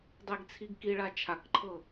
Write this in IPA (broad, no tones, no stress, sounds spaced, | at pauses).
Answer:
dˤ e ɡ t͡sʰ i ɡ k i ɭ a t͡ʃʰ a k ǃʰ ɤ